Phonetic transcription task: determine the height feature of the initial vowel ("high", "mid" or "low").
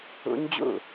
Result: high